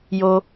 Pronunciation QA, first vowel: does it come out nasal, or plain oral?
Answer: oral